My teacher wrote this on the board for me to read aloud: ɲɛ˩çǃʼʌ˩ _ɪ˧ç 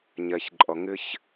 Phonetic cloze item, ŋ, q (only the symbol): ŋ